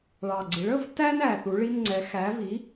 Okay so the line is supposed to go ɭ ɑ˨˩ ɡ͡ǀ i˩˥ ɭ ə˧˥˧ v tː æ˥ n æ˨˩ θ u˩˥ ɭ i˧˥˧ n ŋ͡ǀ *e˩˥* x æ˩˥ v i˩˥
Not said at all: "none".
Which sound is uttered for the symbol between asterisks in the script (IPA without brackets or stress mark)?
ɛ˩˥